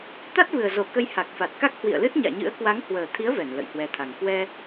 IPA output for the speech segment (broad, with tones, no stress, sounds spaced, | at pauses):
t̪ a˦˥ t̚ v ɨ˨˩ ə̯ z o˧˩ k ə˧ j h a˨˩ k̚ f a˨˩ t̚ k a˦˥ k̚ h w ḭ˧˨ ə̯ l ɨ˦˥ t̚ ɲ a̰ː˧˨ ɲ ɨ̰˧˥ ə̯ k w a˨˦ ŋ h w əː˨˩ t̪ʰ i˨˦ ə̯ v ɛ˧˩ n l ə̰˧˨ j h w ɛ˨˦ t̪ʰ a˨˩ ŋ k w ɛ˧